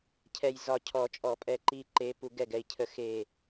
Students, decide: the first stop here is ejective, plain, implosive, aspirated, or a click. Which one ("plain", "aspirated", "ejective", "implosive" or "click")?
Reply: aspirated